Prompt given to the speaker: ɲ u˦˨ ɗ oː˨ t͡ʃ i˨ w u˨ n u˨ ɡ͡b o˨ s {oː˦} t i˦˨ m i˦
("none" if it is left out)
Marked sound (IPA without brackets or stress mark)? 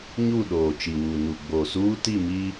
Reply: uː˦